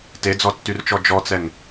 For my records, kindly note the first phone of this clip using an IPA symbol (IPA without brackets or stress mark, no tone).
t